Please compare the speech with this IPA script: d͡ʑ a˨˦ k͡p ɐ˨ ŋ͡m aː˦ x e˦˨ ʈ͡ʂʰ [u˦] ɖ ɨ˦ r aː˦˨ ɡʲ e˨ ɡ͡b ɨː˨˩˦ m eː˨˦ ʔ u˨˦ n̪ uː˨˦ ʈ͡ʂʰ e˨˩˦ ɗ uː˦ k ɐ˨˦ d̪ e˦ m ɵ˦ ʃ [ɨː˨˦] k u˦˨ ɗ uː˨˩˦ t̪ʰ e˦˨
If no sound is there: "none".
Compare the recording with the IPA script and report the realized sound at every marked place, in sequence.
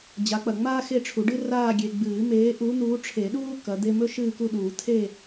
u˨˩˦, ɨː˦˨

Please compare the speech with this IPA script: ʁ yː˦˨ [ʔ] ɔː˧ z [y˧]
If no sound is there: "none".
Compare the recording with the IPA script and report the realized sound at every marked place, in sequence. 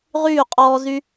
qʼ, y˧

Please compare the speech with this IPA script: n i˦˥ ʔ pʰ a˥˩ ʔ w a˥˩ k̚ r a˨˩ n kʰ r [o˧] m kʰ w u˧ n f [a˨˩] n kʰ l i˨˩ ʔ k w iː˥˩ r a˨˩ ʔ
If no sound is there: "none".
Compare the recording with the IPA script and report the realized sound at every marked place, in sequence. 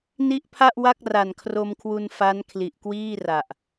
o˧, a˦˥

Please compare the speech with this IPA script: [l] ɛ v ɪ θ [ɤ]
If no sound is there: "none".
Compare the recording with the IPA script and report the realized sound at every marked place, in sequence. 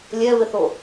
lʲ, o

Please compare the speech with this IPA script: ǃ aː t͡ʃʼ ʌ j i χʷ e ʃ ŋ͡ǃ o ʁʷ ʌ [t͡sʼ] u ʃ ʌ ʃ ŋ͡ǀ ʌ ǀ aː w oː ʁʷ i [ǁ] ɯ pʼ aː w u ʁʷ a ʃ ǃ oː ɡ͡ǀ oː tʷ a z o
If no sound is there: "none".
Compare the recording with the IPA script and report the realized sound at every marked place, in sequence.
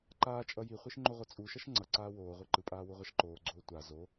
t͡sʼ, ǃ

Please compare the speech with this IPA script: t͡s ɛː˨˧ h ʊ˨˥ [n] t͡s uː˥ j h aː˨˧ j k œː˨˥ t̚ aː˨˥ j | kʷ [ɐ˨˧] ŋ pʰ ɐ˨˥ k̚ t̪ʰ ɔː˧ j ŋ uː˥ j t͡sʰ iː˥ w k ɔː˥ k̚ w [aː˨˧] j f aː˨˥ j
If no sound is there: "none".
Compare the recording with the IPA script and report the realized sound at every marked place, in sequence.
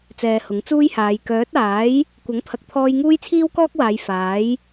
ŋ, ɐ˨˥, aː˨˧

